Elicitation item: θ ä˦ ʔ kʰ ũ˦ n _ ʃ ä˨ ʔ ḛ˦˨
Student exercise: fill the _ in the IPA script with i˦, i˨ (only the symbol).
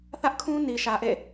i˨